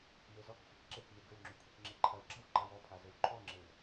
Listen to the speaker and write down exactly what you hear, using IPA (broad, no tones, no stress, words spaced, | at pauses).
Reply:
mezɔkxʷak ǁekme ɡɘwŋ͡ǁʉ kʷʰekŋ͡ǁeǃʰɐwɡ͡ǁaw ǃawɔpʰa zɘwǃʰɔŋ͡ǁew